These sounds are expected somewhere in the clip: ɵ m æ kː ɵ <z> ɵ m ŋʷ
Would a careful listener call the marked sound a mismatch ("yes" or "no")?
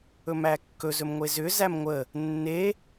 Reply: no